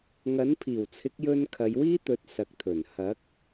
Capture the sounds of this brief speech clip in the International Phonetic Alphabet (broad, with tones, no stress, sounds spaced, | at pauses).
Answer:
ŋ ɐ˨˥ n pʰ iː˨˩ w t͡sʰ ɪ˨˥ k̚ j ɵ˧ n kʰ ɐ˨˧ j w iː˥ t̪ ɵ˨˥ t̚ s ɐ˨ k̚ t̪ʰ ɵ˨˩ n h ɐ˨˥ k̚